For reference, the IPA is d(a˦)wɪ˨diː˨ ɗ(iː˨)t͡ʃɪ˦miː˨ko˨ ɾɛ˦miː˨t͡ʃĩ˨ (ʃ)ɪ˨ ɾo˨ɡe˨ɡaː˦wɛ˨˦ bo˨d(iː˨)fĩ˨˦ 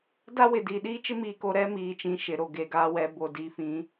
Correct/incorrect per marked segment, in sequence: correct, incorrect: iː˦, correct, correct

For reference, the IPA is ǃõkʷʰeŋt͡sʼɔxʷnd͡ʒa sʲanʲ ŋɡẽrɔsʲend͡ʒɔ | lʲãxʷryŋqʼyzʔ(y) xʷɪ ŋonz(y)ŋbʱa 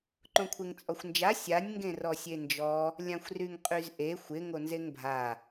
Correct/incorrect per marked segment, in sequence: incorrect: e, incorrect: e

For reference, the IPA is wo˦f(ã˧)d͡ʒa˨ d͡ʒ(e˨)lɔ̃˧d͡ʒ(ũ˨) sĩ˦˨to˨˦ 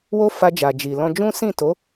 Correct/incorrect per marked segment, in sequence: incorrect: a˧, incorrect: i˨, incorrect: ũ˦

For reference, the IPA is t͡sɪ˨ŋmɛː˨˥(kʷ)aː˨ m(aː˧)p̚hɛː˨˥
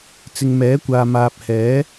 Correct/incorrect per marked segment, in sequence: correct, incorrect: aː˨

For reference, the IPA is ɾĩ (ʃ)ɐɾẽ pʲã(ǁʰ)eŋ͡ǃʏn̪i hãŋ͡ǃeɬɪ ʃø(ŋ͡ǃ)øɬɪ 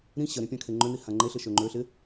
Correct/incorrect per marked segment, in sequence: incorrect: ɕ, incorrect: kʰ, correct

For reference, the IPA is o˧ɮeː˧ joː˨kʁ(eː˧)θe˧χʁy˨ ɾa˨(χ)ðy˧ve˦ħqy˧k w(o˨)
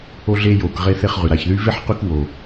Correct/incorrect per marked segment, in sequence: correct, incorrect: ç, correct

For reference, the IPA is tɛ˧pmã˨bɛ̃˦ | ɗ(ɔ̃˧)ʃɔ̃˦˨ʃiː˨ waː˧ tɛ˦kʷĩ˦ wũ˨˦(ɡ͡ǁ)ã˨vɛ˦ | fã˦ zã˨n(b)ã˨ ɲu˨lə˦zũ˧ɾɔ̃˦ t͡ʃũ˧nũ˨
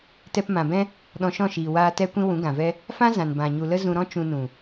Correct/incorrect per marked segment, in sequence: correct, incorrect: ɡ, correct

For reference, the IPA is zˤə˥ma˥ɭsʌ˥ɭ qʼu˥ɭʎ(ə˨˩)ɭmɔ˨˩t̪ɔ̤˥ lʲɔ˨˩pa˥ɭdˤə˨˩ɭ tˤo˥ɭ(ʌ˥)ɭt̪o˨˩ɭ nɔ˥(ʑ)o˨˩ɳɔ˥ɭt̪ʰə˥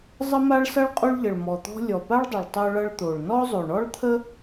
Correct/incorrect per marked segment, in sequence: correct, correct, incorrect: zˤ

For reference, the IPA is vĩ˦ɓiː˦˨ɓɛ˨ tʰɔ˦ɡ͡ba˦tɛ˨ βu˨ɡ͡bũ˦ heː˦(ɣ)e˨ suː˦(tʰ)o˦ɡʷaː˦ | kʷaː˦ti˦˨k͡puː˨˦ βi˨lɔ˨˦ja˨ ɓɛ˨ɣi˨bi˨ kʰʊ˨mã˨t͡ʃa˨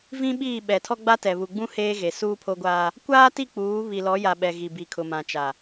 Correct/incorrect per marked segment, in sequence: correct, incorrect: pʰ

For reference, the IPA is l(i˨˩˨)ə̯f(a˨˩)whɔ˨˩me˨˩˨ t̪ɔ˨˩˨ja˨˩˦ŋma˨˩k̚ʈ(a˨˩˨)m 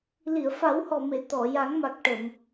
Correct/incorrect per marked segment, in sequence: correct, incorrect: a˨˩˦, incorrect: ə˨˩˨

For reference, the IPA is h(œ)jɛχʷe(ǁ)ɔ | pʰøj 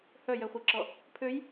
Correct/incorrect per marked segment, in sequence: correct, correct

